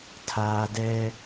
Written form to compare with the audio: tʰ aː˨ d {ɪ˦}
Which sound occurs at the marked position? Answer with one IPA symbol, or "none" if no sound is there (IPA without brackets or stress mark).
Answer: ɛ˦